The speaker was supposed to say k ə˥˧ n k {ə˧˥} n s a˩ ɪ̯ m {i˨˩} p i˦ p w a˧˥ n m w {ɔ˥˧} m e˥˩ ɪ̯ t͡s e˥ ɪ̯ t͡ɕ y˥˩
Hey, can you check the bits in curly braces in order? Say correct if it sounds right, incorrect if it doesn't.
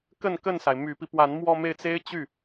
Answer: incorrect, incorrect, correct

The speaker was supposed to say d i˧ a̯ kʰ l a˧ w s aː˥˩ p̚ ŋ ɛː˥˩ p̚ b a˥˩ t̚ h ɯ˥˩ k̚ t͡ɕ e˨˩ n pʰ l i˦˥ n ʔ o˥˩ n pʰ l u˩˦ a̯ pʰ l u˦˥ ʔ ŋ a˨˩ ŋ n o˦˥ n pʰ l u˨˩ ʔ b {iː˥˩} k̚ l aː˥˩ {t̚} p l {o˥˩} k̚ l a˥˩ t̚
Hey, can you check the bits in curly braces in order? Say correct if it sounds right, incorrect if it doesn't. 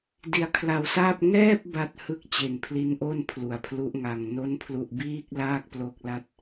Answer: correct, incorrect, incorrect

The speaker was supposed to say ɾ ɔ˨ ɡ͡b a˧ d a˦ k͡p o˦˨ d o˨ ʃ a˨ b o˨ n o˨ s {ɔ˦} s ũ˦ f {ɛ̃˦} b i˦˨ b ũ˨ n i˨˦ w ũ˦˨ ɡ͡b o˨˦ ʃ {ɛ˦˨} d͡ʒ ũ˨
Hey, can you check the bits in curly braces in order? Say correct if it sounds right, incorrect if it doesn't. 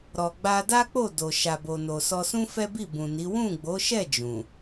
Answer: incorrect, incorrect, correct

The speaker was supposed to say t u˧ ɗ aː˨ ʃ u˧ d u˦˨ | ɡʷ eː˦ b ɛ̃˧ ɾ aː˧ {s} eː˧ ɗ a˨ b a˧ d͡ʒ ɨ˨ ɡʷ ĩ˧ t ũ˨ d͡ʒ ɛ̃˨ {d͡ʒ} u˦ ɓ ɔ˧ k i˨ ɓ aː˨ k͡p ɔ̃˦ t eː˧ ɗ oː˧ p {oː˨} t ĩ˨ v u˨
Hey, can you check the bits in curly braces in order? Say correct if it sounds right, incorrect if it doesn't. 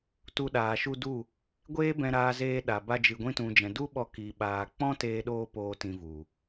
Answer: incorrect, incorrect, correct

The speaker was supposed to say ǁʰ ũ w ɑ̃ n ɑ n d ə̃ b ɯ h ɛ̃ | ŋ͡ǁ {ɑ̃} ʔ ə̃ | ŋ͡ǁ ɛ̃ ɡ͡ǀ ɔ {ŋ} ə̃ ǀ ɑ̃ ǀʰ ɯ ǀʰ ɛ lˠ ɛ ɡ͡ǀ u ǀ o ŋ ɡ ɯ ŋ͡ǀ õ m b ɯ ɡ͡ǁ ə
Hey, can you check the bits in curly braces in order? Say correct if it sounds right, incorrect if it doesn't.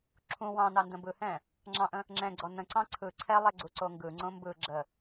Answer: correct, incorrect

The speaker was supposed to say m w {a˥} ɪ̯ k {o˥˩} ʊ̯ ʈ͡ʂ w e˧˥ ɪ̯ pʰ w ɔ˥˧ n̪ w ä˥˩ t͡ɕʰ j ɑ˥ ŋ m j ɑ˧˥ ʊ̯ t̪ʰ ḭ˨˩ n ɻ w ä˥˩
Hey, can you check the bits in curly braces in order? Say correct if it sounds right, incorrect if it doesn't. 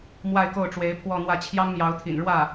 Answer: incorrect, correct

